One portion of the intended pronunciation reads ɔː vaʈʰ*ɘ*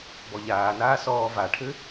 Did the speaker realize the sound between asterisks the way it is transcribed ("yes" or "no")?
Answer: yes